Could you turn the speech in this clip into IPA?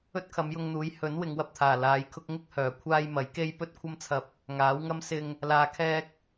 ɵ˥ t̚ kʰ ɐ˨˧ m j ʊ˧ ŋ n̪ uː˨˥ j h ɵ˨˥ n w ɪ˨˧ ŋ w ɐ˧ p̚ t̪ʰ aː˨˩ l aː˨˧ j kʰ ʊ˥ k̚ ŋ ɪ˥ k̚ h œː˨˩ kʷʰ aː˧ j m ɐ˨˥ j k e˥ j p ɵ˥ t̚ kʷʰ ɐ˥ m t͡sʰ ɐ˧ p̚ | ŋ aː˨˥ w ŋ ɐ˥ m s ɪ˧ ŋ | l aː˨ kʰ ɛː˧ k̚

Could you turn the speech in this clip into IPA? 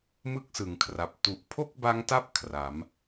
m ɯ˥˩ k̚ s ɯ˩˦ ŋ kʰ r a˨˩ p̚ t u˨˩ ʔ pʰ o˥˩ k̚ b a˦˥ ŋ t a˦˥ p̚ kʰ r a˩˦ m

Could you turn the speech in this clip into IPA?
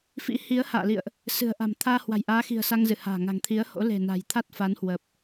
f ḭ˧˥ h i˨˦ ə̯ h a̰ː˧˨ l ḭ˧˨ ə̯ ʔ | s ɨ̤˨˩ ə̯ ʔ a̤˨˩ m t̪ʰ aː˧ h w a̤˨˩ j ʔ aː˨˦ x i̤˨˩ ə̯ s a˧ ŋ z ɨ˧˩ h a̤ː˨˩ ŋ a̤˨˩ ŋ t̪ʰ i˨˦ ə̯ h o̰˧˥ l e̤˨˩ n a̤˨˩ j t̪ʰ a˦˥ t̚ f a˨˦ n h w ə˨˩ p̚

